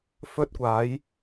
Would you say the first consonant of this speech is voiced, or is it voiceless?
voiceless